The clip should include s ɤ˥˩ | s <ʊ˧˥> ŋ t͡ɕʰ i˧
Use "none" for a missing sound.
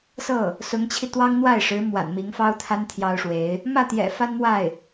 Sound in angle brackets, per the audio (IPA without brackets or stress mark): ʊ˧˥